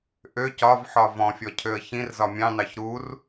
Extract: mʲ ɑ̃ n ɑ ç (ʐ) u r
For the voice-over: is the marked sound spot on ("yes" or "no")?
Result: no